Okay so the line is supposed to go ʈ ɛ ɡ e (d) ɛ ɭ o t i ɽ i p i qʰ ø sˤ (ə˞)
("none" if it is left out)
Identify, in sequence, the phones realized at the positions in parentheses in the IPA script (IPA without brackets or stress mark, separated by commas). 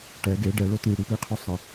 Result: ɖ, ə